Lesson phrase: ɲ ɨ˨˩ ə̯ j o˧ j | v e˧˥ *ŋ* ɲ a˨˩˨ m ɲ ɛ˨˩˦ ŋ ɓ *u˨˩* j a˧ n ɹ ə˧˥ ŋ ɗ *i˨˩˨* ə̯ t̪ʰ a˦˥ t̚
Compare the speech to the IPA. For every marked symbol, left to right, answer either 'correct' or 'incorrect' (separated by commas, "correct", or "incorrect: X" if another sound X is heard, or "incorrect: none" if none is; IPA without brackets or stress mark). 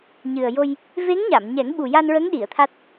correct, correct, correct